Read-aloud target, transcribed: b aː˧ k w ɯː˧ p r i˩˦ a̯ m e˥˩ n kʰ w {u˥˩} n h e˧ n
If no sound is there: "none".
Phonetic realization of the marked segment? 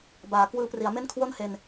o˥˩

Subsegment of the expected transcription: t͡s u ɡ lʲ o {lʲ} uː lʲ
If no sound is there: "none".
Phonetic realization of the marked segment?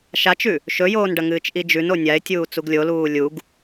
l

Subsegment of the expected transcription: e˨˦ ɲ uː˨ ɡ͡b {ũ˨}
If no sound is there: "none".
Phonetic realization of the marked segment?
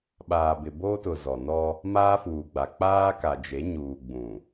ũ˨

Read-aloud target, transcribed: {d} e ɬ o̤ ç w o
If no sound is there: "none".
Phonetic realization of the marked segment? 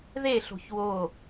ð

